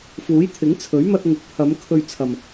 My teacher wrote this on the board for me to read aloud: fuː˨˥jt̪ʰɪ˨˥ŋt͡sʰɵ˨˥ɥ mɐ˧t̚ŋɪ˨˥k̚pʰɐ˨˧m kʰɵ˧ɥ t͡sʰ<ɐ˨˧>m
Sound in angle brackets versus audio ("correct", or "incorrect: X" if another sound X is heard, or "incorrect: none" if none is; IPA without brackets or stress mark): incorrect: ɐ˨